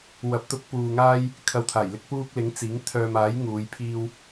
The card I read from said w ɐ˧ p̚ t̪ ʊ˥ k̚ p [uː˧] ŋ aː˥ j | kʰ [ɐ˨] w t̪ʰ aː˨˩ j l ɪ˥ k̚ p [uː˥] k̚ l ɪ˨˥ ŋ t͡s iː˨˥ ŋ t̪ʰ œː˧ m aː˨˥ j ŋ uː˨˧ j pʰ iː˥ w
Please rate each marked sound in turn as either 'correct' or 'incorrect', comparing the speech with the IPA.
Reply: correct, incorrect, correct

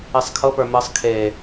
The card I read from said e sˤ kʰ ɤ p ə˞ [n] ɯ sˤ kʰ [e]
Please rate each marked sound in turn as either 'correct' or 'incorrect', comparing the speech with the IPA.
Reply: incorrect, correct

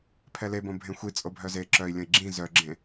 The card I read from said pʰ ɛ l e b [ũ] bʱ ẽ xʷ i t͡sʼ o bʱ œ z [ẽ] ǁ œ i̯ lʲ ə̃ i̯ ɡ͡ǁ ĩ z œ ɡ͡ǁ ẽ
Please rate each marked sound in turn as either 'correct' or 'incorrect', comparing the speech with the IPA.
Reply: incorrect, incorrect

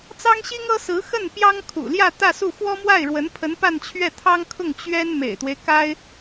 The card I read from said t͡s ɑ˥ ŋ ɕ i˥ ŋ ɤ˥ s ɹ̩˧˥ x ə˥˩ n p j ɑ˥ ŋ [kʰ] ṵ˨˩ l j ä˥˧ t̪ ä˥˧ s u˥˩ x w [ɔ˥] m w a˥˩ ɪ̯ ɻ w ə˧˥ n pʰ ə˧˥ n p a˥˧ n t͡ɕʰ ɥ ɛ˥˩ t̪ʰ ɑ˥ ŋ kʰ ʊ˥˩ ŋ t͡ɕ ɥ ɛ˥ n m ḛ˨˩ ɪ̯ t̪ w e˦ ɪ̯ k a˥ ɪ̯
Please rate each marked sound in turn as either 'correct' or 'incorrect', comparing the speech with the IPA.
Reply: correct, correct

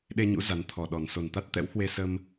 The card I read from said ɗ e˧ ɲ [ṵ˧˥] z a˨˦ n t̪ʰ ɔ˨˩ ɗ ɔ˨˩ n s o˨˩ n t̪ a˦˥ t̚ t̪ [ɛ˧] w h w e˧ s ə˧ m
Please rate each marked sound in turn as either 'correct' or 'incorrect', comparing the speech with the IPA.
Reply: correct, incorrect

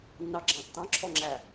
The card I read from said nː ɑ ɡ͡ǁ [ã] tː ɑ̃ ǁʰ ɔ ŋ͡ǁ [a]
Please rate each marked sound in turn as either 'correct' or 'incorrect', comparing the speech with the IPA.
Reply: incorrect, incorrect

